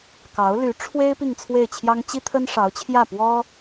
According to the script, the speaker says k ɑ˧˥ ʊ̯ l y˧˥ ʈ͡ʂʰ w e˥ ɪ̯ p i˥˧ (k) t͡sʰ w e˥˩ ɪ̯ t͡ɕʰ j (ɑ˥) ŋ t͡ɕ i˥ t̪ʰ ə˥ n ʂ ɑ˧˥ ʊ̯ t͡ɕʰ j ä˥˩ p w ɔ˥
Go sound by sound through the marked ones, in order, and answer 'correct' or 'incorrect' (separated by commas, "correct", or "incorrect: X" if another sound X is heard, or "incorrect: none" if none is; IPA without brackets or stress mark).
incorrect: ŋ, correct